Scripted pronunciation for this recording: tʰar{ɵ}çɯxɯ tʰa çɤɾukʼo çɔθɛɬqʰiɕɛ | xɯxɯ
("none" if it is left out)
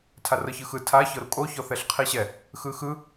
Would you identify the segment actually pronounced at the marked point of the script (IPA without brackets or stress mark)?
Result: ɤ